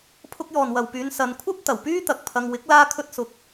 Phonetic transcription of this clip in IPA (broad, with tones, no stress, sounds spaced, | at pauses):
pʰ ʊ˧ k̚ j ɔː˨ n w ɐ˨ w p yː˨˧ n s ɐ˨˧ n kʷʰ ɐ˥ p̚ t̪ ɐ˨˩ w p yː˥ t̪ ɐ˨ k̚ pʰ ɐ˧ ŋ w ɪ˨˥ k̚ l aː˧ kʰ ɵ˥ t̚ s ʊ˧ k̚